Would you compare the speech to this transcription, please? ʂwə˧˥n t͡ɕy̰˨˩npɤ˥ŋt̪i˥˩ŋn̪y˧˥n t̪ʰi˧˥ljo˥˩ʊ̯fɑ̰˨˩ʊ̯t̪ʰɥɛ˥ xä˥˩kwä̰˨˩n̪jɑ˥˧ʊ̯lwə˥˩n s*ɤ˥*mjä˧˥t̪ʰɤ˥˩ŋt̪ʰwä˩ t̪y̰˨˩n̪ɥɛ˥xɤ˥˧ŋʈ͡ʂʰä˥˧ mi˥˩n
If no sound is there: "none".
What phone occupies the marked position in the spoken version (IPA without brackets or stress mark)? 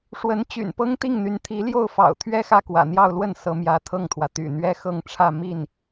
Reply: ɤ˧˥